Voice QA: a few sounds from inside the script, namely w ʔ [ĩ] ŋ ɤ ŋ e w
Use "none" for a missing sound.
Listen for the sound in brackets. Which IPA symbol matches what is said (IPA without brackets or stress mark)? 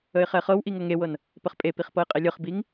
i